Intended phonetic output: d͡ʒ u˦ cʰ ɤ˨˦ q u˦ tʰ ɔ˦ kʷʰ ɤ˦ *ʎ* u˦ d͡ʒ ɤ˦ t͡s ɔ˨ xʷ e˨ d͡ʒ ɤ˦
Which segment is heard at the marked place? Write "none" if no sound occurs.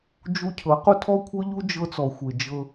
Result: ʎ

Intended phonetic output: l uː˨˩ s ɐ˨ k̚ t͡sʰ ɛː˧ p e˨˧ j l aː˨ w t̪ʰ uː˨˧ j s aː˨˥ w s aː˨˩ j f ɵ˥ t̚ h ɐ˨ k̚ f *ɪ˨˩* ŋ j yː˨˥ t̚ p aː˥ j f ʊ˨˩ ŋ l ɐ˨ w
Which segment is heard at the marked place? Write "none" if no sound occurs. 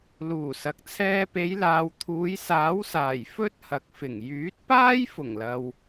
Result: ɪ˨˩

